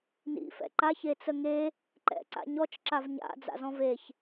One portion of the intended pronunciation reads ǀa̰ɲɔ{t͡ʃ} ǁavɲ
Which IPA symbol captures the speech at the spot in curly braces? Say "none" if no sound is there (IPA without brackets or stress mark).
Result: t͡ʃ